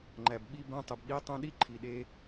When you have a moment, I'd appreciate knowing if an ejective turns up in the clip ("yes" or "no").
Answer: no